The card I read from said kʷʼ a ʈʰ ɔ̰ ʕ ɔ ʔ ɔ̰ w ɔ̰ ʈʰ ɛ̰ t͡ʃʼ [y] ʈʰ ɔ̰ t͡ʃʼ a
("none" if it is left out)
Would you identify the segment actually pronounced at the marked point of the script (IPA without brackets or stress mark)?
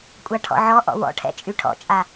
y